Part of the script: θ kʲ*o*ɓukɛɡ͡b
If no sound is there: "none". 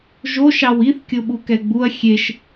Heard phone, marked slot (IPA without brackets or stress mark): o